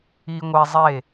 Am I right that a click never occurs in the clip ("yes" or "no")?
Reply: yes